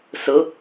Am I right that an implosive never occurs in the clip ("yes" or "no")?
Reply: yes